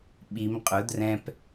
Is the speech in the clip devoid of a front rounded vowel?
yes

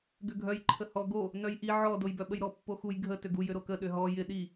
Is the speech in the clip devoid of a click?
no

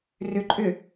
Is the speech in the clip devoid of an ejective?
no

